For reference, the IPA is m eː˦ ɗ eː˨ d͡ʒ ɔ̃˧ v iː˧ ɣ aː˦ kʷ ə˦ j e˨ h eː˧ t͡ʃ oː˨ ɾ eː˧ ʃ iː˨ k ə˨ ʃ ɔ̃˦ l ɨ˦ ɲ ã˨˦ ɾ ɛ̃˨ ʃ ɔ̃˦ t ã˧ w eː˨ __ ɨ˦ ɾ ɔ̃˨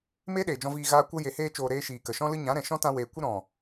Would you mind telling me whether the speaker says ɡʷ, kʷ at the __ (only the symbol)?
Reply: kʷ